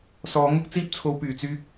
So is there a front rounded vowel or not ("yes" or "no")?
yes